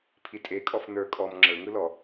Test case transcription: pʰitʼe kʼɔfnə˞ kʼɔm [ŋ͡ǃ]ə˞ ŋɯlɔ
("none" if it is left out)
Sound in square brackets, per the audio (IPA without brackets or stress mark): ŋ͡ǁ